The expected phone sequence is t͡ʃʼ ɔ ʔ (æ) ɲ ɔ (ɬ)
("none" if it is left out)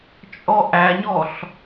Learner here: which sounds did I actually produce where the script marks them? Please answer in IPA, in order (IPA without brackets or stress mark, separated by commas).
æ, ɬ